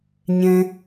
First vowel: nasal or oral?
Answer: nasal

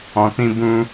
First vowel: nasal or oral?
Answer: nasal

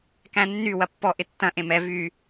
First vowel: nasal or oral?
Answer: nasal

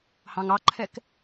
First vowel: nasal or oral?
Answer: nasal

